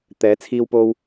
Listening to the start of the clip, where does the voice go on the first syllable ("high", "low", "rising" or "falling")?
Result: rising